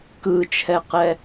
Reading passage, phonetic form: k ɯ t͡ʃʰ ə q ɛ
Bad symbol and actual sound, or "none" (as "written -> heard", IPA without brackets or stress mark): ə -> ɛ